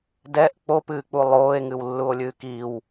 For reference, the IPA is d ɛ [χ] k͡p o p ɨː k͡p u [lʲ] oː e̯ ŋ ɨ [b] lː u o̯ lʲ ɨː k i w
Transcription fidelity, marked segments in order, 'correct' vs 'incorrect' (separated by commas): incorrect, incorrect, incorrect